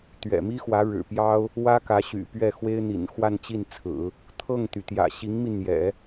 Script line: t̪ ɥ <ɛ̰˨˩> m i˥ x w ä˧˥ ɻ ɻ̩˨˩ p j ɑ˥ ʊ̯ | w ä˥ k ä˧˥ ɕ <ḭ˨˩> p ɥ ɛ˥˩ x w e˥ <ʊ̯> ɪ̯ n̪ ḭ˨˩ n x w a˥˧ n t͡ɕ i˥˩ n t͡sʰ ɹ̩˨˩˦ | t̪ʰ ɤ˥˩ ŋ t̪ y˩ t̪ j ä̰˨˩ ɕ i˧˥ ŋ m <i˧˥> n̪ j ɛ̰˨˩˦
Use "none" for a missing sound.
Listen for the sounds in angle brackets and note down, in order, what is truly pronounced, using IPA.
ɛ̰˨˩, y̰˨˩, none, i˧

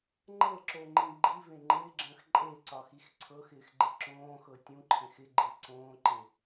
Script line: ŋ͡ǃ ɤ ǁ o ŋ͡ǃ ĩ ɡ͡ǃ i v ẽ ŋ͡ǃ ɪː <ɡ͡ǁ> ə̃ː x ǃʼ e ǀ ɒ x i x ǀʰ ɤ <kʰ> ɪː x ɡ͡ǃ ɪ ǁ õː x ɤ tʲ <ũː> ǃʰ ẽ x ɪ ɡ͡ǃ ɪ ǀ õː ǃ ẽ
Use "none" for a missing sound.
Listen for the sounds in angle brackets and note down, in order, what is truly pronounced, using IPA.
ɡ͡ǁ, x, ũ

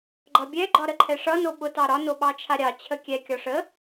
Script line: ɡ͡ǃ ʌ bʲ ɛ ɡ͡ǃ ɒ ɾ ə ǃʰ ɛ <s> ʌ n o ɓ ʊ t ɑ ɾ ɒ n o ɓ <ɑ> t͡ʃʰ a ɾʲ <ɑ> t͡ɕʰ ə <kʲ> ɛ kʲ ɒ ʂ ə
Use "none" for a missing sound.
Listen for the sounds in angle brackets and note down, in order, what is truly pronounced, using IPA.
ʂ, ɑ, ɑ, kʲ

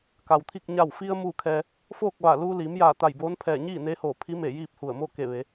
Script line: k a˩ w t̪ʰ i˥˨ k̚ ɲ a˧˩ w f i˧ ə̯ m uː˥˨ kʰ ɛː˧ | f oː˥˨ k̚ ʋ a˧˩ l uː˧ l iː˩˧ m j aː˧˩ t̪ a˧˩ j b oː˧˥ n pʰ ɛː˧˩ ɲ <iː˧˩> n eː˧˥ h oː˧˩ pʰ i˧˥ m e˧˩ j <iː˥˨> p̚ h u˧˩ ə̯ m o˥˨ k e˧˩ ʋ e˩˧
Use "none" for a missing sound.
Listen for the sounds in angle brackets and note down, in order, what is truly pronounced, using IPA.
iː˥˨, iː˥˨

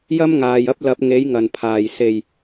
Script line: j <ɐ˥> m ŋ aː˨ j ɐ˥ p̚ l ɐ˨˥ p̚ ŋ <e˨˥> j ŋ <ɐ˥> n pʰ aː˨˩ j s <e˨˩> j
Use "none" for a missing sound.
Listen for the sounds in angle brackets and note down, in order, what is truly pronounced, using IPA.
ɐ˥, e˨˥, ɐ˨˩, e˨˩

